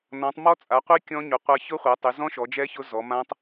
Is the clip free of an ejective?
no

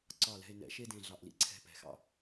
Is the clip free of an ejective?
yes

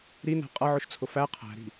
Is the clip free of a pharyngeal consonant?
no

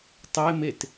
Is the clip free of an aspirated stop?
yes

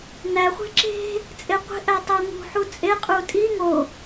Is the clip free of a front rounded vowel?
yes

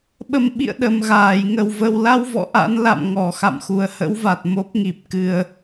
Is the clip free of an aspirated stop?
yes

